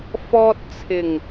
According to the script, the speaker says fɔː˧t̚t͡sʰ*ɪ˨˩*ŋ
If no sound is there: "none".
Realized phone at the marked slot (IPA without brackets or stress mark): ɪ˨˩